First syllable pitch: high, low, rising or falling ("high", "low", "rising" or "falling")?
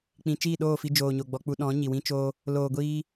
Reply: low